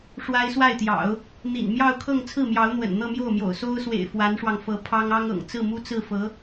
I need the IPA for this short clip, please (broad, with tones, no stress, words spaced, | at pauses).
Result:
ʂwa˥ɪ̯swa˥˩ɪ̯t̪jɑ̰˨˩˦ʊ̯ | n̪ḭ˨˩n mjɑ˥˧ʊ̯kʰɤ˥˧ŋ t͡sʰɹ̩˥˩mjɑ˧˥ʊ̯n̪wə̰˨˩n n̪ɤ˥˧mjo˥˩ʊ̯mjo̰˨˩ʊ̯ so˥ʊ̯swḛ˨˩ɪ̯ fwa˧˥nʂwɑ˧ŋfɤ˧˥ pʰɑ˥ŋɑ˥ŋɤ̰˨˩ŋ t͡sɹ̩˥˩mu˥t͡sɹ̩˥˩fɤ˧˥